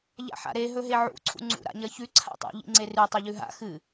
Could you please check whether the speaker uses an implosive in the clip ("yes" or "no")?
no